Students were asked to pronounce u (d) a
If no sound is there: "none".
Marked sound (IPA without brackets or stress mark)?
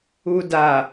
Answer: d